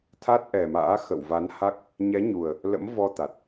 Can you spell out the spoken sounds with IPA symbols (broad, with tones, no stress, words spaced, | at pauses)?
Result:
t̪ʰa˦˥t̚ʔɛ˨˩ma̰ː˧˥ xə̰˧˨wva˨˦nha˦˥k̚ | ɲɛ˨˦ɲu˨˩ə̯ | lə̰˧˥mvɔ˧t̪a˨˩t̚